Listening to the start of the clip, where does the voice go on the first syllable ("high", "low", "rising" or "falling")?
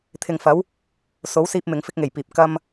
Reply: low